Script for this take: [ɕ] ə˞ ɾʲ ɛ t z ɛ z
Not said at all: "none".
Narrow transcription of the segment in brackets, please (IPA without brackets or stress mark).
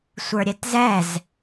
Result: sʷ